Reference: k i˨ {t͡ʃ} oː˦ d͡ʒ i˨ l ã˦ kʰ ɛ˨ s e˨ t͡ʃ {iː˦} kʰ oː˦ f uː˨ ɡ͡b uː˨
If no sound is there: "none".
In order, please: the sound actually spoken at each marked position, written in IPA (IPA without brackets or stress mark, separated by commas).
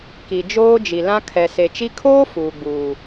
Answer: d͡ʒ, i˦